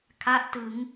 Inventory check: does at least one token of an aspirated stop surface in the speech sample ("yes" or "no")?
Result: yes